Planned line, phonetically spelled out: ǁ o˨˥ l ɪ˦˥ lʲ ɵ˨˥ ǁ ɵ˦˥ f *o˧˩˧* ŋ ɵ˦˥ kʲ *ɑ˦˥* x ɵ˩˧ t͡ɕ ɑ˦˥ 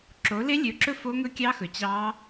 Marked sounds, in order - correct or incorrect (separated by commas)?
incorrect, correct